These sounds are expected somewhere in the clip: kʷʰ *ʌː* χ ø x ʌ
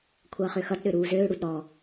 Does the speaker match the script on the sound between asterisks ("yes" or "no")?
yes